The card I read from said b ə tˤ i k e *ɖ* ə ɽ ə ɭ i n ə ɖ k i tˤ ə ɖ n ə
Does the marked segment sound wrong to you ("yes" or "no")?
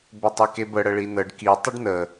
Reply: yes